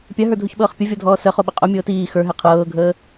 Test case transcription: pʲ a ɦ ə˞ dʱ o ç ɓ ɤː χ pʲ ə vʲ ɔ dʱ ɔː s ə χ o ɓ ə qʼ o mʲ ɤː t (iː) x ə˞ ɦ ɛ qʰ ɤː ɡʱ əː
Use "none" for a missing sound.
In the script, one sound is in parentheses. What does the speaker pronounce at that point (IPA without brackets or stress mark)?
iː